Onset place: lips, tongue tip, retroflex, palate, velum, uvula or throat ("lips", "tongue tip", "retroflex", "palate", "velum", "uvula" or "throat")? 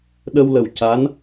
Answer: tongue tip